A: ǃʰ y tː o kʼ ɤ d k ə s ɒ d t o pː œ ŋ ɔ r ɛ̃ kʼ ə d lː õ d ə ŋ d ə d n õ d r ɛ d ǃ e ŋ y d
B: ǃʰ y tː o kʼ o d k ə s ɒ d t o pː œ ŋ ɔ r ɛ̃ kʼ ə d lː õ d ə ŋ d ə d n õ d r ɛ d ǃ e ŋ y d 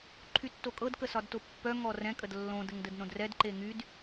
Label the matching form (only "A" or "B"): A